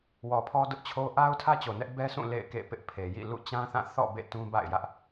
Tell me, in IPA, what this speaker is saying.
w ɔ˨ pʰ ɔ˦ d ʊ˦ ʔ t͡ɕʰ o˦ ʔ a˦ ʊ̯ tʰ ä˦ t͡ɕ o˨ n ɛ˦ ʔ b ɛ˦ s ũ˦˨ l ḛ˦˨ ɪ̯ k ḛ˦˨ p ɪ˦ ʔ pʰ e˨ j ḭ˦˨ l ṵ˦˨ t͡ɕ ã˦ θ ã˦˨ θ ɔ̰˦˨ b ḛ˦˨ t ũ˦ b a̰˦˨ ɪ̯ j ä˦ ʔ

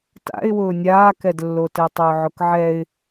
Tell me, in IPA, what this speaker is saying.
t a̰ ɪ̯ w ʊː nʲ aː k ɛ d lː o t ɛ tˤ ʊː ʕ ʊ k ʕ ɛ ɪ̯

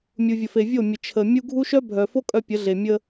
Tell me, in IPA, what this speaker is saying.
mʲ u˨ vʲ ə˨ f e˨ vʲ o˦˨ mʲ ə˨ t͡ʃʰ ə˨ mʲ u˦ ɡʱ u˦ ʃ œ˦ bʱ œ˨ f o˦ kʼ œ˦ pʲ ə˨˦ ɮ e˨ mʲ ə˦

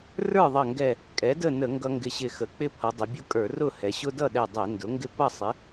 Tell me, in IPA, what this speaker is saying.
r ə˞˥˨ ðˤ ʌ˧˩ ŋ ɡ ɛ˧˩ | kʼ ɛ˩˥ d ə˥˨ n ə˧˩˧ ŋ ɡ ʌ˦ ŋ ɡ ɪ˧˩ ɕ ɪ˧˩ x ə˩˧ k͡p ɪ˦ pʰ ʌ˩˧ dˤ ʊ˩˧ bʲ ʊ˦ kʼ ə˞˧˩˧ r ʊ˥˨ h ɛ˩˧ ɕ ʊ˦ d ʌ˥˨ ɗ ɛ˧˩ dˤ ɛ˧˩˧ n d ʊ˩˥ ŋ ɡ ɪ˥˨ p ʌ˥˨ sˤ ɪ˩˥

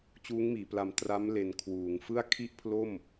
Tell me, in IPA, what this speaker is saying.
t͡ɕ uː˦˥ ŋ m iː˩˦ p l a˧ m t r a˦˥ m l e˧ n kʰ w uː˩˦ ŋ f ɯ˥˩ a̯ kʰ i˥˩ ʔ pʰ l o˥˩ m

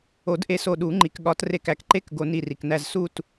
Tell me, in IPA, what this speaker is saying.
o˨˩˦ d ʔ e˧ s o˧˩ ɗ u˨˩˦ ŋ͡ǃ i˩ k ɠ ɒ˨˩˦ t r e˧˩ k æ˩ k ǃ e˥˨ k ɡ o˧ n i˧˩ r i˩ k n æ˥˨ z s u˥˨ t

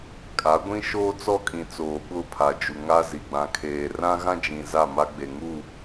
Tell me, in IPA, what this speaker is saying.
kʼ a˨˦ ɡʷ ĩ˦ ʃ oː˦ t͡s ɔ˦ kʼ ĩ˨ t͡s oː˨ ɓ ʊ˦˨ pʰ a˨ d͡ʒ u˨ ŋ a˦ z i˨ ɡ͡b ã˨ kʰ eː˨ r ã˦ ɣ ã˦ d͡ʒ ĩ˨ z a˦˨ m a˦ ɡ͡b e˨ ŋ u˦˨

